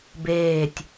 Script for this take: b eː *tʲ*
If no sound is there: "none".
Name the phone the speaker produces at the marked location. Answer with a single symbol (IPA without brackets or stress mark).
tʲ